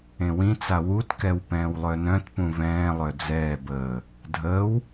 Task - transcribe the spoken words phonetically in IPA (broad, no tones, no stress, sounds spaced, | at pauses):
ẽ w ĩ t͡s a w u t k ɛ w p ɛ̃ː w lˠ œ n œ̃ t p ũ v ɛ̃ː lˠ œ d͡z ɛː b əː | dʱ əː w